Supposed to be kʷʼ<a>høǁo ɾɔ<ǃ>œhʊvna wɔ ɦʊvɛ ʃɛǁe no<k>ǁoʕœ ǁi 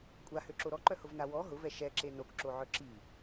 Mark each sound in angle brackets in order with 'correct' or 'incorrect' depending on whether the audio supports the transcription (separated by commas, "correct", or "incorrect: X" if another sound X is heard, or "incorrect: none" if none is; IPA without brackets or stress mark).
correct, correct, correct